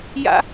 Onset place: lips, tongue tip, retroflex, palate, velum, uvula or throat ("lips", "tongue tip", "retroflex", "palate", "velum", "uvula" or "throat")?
palate